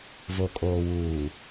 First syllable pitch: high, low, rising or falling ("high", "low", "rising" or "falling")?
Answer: low